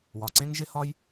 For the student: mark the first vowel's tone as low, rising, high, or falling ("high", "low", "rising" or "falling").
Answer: low